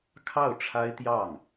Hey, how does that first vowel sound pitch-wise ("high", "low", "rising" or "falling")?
falling